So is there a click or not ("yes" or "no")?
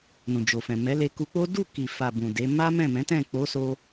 no